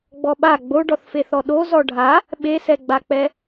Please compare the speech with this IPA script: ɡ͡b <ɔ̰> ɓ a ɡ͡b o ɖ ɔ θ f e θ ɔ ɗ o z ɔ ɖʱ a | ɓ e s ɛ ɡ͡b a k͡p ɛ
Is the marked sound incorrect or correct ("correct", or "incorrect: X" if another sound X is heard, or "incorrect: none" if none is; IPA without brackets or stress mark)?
incorrect: ɔ